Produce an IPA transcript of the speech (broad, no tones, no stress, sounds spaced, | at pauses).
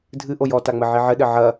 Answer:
dʱ ɨ ʔ o j ɔ t a ŋ͡m ɘ ʕ i ʕ ɘ ɗ ɘ ʕ ɐ